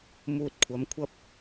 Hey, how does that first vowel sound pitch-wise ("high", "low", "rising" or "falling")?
low